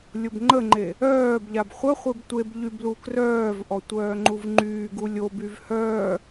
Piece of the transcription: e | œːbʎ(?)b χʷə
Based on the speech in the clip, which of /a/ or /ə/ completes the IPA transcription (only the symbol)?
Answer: a